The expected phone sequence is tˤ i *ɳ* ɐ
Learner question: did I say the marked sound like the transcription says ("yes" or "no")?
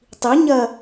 no